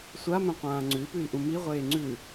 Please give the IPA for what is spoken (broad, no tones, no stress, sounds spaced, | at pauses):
sʷ a m ẽ qʷ ãː ŋ͡ǀ ʉ i̯ p ʉ i̯ ʔ ũ m i ʁʷ eː ŋ͡ǀ ʉ